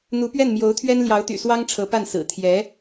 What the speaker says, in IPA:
n̪u˧˥pɥɛ˥˩nmjo˧˥ʊ̯t̪ʰɥɛ˥n ljɑ˧˥ʊ̯t̪y̰˨˩swɑ˥ŋ ʈ͡ʂʰɤ˧˥pa˥˩n sɹ̩˨˩t̪ʰjɛ˧˥

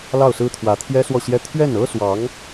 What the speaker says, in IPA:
lɑ˥˩ʊ̯sɹ̩˥t̪ʰwä˧˥ t̪ʰjɛ˥swɔ˥˩ɕjɛ˥ t̪ʰɥɛ˥˩nɤ˥swɑ˧˥ŋ

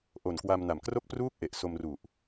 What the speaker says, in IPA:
ʔo˨˩nkwa˧mna˨˩m kro˦˥k̚pruː˦˥k̚ ʔe˨˩ʔ so˧mru˨˩ʔ

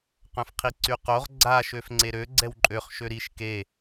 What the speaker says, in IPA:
qœ̃fqʰiǀyqoʁ ɡ͡ǀa ʃøfŋ͡ǀeɾø ɡ͡ǀɛwǃʼøχ ʃøɾiʃ ke

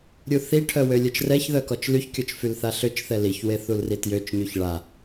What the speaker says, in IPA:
ɾʲuθiʈʰœ wølʲœt͡ʃrɛçðœ kɔt͡ʃlyçkʲɔt͡ʃ fylθaɬøt͡ʃθɛ liçwe θulritjøt͡ʃɲyç ɭa

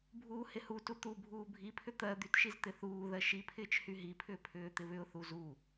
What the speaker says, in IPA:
bʱuːhɪhutu t̪ubʱuː bʱipʰʏ t̪ɜ d̪ytʃiz t̪ɪθuːðɜ ʃipʰɪːt͡ʃ hyɦipʰʏː pʰʏːt̪ɪβʏʊ̯θu zu

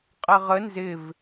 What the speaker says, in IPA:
qʼɛʁə nzɪv

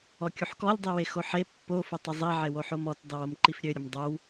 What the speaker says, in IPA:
ɔkʲuħkɔlʲ dˤiwexoħe pːo fʊtˤəzˤi ʕewoħomɔt dˤiwomǃifɾʲø ɾʲʊmdˤow

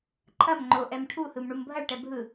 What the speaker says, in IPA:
ǃʰɐm ŋ͡ǃo ʔɛmʈʰuhɯm ɳumbʱɐɭʈɛ bʱɯ

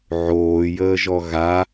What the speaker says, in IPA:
ʕoːjəːʒɔ ɣa

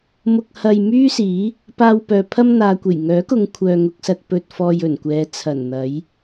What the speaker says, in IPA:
mʊ˧k̚hɐ˧j myː˥siː˨˥ | paː˧wpœː˨pʰɐ˥m n̪aː˨kʷe˨˩j ŋœː˨˥kʊ˨˧ŋ kʷʰœː˨ŋʊ˨k̚sɐ˧t̚ pɵ˨t̚fɔː˨j ɵ˨˩nkʷɛː˨˧ t͡sʰɐ˨˩nn̪ɐ˨˥j

